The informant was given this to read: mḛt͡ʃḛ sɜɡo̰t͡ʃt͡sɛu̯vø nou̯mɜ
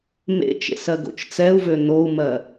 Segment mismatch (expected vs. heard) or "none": none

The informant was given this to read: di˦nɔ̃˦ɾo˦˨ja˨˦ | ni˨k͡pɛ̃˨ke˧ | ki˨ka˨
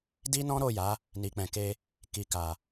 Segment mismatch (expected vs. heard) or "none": none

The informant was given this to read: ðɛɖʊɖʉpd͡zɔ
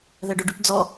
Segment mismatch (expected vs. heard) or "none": none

